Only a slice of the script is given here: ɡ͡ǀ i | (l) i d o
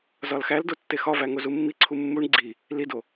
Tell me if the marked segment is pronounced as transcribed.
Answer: yes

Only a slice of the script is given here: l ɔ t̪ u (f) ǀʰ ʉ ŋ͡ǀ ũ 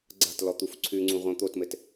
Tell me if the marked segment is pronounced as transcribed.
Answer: yes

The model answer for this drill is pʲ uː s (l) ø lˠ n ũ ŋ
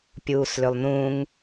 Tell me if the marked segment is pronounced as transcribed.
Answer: yes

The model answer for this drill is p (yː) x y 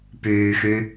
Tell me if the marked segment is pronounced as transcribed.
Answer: yes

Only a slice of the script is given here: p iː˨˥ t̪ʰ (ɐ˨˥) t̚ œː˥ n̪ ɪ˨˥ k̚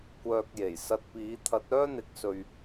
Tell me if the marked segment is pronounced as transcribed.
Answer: yes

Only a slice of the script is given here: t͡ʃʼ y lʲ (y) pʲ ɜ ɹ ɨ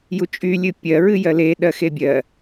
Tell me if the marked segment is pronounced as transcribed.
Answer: no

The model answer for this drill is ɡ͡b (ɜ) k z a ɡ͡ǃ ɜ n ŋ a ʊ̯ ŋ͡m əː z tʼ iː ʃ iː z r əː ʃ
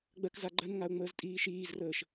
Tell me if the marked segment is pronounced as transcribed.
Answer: yes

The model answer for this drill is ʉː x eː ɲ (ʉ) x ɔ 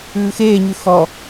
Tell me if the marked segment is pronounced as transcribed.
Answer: yes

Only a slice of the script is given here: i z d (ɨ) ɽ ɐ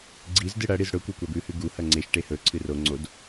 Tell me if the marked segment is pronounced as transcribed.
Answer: yes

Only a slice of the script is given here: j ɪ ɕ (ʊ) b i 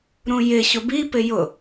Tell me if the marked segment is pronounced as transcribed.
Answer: yes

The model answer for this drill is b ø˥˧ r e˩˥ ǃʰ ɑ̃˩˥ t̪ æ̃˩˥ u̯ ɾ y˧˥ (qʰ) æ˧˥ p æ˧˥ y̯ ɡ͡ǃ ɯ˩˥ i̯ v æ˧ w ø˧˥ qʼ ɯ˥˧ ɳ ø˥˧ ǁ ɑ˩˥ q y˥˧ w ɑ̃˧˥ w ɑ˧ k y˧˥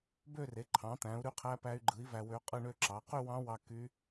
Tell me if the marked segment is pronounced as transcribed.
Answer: yes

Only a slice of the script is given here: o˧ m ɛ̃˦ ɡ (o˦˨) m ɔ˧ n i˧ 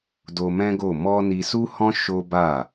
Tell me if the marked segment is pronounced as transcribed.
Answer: yes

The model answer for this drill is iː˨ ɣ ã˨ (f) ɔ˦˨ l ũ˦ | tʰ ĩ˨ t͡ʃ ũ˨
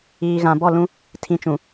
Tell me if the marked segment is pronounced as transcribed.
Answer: no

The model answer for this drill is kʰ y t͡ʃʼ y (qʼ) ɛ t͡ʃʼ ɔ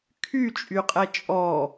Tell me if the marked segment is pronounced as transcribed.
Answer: yes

